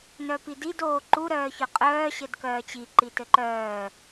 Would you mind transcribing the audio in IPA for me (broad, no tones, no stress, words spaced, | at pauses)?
nœpidid oːǃu ɾœːçœqʼœː ɕɘdkœːt͡ɕi ǃitɘǃœː